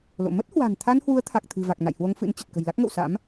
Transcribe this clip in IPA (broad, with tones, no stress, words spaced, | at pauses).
lo̰˧˨ mə˦˥t̚hwa̤˨˩nt̪ʰa˧nhwu˨˦ə̯ t̪ʰa˨˩k̚t̪ʰɨ̤˨˩va˨˩k̚ na̰˧˨jhwo˧ŋfɨ̰˧˥nt͡ɕə˨˩t̚ kə̤˨˩jla˦˥k̚ŋə̰˧˨wsa̰˧˥m